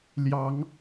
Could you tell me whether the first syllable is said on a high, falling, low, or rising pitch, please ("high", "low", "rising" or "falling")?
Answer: rising